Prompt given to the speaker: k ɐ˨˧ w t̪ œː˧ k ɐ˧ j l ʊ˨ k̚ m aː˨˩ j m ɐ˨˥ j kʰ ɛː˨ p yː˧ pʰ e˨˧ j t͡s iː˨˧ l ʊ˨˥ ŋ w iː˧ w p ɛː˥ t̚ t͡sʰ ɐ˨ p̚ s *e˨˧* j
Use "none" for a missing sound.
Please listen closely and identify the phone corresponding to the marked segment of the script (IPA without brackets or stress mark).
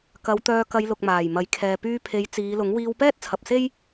e˥